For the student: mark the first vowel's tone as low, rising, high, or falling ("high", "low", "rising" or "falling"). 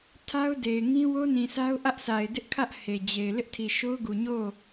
high